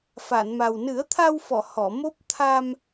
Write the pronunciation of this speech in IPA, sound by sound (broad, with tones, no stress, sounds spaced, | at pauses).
f a˨˩˨ n m a˨˩ w n ɨ˨˩˦ ə̯ t̪ʰ a˧ w f ɔ˨˩˨ h ɔ˨˩˨ m o˦˥ p̚ t̪ʰ a˧ m